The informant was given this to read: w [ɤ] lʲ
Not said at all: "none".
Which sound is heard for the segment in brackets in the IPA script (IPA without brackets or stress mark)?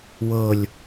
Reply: ɤ